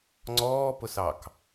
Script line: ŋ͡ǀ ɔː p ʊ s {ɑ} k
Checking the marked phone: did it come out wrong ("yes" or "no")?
no